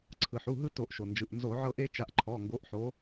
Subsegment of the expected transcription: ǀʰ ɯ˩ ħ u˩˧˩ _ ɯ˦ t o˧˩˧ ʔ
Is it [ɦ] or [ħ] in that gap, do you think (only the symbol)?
ɦ